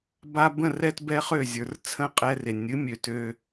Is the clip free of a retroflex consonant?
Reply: yes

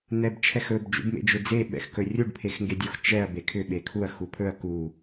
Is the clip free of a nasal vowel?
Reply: yes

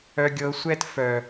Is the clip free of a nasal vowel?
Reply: yes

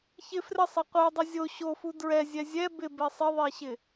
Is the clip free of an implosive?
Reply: yes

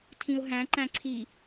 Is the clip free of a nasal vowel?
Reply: no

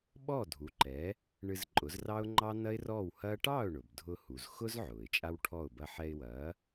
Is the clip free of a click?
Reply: no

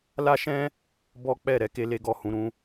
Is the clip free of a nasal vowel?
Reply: no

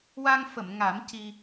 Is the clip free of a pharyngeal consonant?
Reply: yes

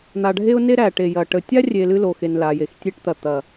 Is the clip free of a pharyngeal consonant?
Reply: yes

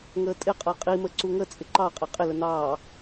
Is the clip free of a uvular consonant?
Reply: no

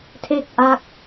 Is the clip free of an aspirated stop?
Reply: no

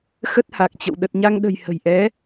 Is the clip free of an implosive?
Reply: no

